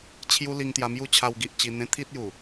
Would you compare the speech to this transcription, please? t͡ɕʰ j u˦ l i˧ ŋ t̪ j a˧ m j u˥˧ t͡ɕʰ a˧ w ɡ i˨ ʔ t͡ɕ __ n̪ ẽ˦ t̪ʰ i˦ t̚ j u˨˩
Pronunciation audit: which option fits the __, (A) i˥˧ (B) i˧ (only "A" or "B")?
B